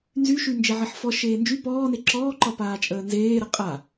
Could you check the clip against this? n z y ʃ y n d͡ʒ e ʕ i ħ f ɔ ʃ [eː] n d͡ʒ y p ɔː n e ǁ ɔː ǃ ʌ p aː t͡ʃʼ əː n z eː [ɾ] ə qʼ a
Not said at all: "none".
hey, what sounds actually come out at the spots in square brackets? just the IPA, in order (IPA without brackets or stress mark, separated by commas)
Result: eː, ɾ